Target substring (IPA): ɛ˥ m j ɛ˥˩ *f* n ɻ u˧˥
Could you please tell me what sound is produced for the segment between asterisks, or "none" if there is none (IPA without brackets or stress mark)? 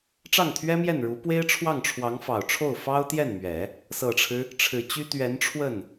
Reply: none